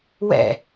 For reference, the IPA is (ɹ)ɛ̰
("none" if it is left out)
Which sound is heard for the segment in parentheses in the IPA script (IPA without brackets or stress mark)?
w